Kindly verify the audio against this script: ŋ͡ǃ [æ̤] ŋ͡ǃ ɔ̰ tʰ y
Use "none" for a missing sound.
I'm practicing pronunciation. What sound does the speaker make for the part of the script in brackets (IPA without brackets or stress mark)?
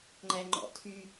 æ